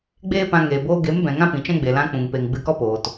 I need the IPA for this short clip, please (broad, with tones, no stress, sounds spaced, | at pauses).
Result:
ɡ͡b eː˦ p ã˧ ŋ eː˨ b oː˧ ɡ e˨˦ m b ɛ̃˨ ŋ ã˦ p ĩ˨ t͡ʃ ɛ̃˦ ɡ͡b e˨ l ã˧ k͡p ũ˨ ŋ p e˨ ŋ ɡ͡b ɨ˧ k ɔ˦ p oː˨ t